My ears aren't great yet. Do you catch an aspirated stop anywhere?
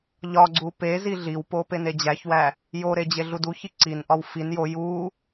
no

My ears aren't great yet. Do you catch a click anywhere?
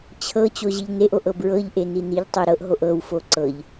yes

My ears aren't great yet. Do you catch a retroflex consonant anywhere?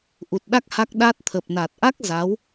no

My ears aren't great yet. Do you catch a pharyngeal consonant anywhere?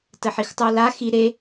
yes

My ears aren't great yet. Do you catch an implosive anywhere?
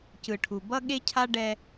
yes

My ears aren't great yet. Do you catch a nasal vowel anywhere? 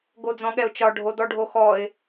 yes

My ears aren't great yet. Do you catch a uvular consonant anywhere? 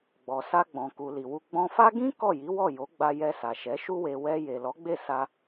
no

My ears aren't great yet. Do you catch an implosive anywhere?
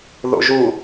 no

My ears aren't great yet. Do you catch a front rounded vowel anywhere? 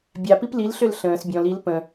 yes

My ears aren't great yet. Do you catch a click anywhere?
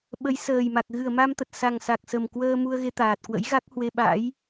no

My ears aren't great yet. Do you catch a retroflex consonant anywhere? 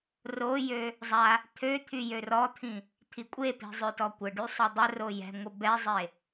yes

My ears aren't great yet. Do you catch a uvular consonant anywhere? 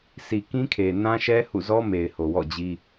no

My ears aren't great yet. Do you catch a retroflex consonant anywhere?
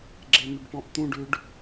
yes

